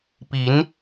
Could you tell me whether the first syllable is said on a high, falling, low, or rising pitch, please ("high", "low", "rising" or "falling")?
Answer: rising